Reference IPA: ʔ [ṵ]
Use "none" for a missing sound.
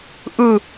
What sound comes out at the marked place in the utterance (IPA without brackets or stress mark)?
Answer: u